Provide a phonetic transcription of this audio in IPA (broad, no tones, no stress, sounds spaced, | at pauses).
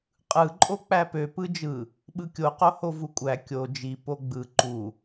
qʼ ɯ ǃʼ o k͡p æ p ø p ɯ d͡ʒ ɯ | ɓ ɯ kʲ o q o h o v u kʷʼ æ kʲ o d͡ʒ i p o ɡ͡b ɯ ǃ u